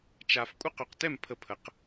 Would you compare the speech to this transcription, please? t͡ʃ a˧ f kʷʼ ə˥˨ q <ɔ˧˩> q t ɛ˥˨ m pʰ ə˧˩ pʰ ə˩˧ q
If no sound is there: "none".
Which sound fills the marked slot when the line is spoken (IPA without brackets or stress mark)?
ɵ˧˩